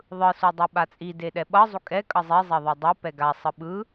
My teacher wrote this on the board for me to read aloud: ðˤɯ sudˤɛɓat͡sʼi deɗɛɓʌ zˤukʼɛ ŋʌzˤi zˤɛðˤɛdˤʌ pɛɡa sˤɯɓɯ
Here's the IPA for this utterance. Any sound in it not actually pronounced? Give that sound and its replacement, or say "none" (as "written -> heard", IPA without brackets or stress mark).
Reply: ŋ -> kʼ